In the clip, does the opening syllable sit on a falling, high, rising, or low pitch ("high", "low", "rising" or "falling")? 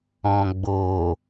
low